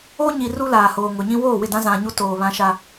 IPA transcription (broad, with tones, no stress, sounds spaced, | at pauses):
o˦ ɲ i˨ r u˦ l aː˨ h oː˨ ŋ ʊ˨ ɲ ĩ˦ w oː˦˨ w ɪ˦˨ d ã˦ z ã˨ ɲ u˦ t oː˨ β ã˦ ʃ a˦